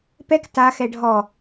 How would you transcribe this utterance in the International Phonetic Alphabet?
pɛk ta xɛɖʱɔ

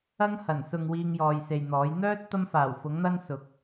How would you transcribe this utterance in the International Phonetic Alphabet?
ɐ˥ŋ hɐ˨˩nsʊ˨ŋ wiː˧ŋjɔː˨jse˨jn̪ɔː˨˥j n̪œː˥t̚ t̪ɐ˥mfaː˨˩wfʊ˨˥ŋn̪ɐ˥n sʊ˨˥k̚

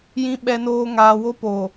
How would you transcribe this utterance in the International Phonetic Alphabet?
jĩ˨ ɓɛ˨noː˨ ŋaː˨wo˦po˨

